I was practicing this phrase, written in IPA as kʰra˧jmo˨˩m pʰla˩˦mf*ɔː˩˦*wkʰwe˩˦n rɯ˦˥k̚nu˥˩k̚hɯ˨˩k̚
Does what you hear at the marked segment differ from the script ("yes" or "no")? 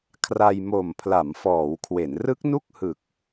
no